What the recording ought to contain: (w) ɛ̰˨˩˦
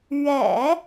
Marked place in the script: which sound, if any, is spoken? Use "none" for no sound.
ɥ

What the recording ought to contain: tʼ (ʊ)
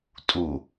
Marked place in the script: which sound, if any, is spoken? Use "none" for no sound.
u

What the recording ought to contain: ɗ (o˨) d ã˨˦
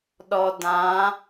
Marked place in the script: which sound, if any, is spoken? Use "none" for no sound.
ɔ˨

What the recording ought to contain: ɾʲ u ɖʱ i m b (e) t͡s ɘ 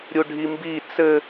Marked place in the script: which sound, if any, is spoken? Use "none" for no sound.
i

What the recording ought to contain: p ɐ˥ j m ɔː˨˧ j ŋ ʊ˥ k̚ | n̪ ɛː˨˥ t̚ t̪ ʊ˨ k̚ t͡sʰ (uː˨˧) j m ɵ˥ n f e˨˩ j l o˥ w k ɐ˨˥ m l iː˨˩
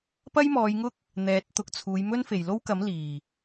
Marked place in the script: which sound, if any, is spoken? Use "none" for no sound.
uː˨˧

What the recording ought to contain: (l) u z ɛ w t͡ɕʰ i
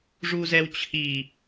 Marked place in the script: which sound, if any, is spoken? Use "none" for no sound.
ʐ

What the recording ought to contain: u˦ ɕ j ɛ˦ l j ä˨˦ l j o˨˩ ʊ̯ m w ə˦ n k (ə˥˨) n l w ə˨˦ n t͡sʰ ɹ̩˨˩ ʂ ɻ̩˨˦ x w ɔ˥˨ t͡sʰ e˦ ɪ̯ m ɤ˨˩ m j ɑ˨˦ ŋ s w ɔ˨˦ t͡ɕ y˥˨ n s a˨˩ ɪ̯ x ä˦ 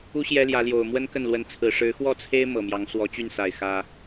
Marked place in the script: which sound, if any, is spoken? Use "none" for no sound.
ə˥˨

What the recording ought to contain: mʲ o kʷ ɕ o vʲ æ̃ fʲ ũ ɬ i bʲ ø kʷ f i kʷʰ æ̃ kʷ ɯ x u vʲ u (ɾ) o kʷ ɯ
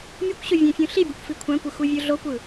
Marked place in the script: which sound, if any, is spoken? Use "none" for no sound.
ɮ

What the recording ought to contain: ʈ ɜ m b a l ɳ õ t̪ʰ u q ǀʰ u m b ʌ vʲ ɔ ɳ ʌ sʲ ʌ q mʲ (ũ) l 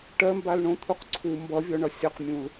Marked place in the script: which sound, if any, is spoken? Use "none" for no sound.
ũ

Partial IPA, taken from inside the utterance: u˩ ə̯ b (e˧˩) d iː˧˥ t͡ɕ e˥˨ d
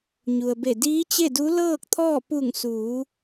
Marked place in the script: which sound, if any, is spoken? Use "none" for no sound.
e˧˩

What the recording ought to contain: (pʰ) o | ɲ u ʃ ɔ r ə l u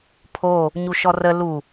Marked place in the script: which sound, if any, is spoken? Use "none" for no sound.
pʰ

